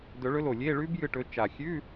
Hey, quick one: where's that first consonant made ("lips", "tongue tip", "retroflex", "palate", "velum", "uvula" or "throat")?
tongue tip